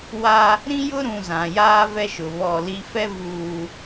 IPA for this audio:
w a˦ | ɾ ĩ˦ j ʊ˦ ɾ ũ˨ z ã˨ j aː˦ v ɛ˦ ʃ ʊ˨ β ɔ˦˨ l i˦ f ɛ˦ v uː˨

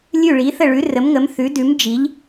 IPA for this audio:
lʲ ʉ˥˨ ɭ i˨˥ θ ə˥˨ ɭ ʉ˨˥ r ə˨˥ m ŋ ə˨˥ m θ ʉ˨˥ d ʉ˨˥ m d͡ʒ i˨˥ ʎ

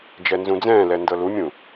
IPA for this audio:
d͡ʒ ɛ n z ũ d͡z ɛ̃ː l ɛ n d ɤ l u mʲ ũ

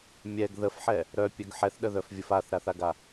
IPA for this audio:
mʲ ɛ ɡ ð ə f ħ ɛ | ɾ œ pʲ œ ɡ ħ ɛ θ ɗ ə ð œ f vʲ ə f a θ ɾ a θ a ɡ a

